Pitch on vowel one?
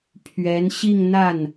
rising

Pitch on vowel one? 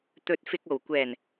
rising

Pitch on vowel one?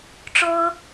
high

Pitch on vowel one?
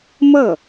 falling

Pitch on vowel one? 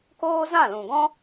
high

